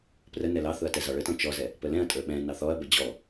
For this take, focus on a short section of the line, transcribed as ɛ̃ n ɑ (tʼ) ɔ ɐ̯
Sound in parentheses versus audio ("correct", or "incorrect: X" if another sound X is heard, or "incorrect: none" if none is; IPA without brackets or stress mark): incorrect: θ